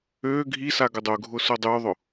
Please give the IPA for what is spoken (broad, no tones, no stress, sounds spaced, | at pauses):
ø ɡʱ i s a ɡ ʊ dˤ ʊ ɡʱ ʊ s ʊ dˤ ʉ ðˤ ʊ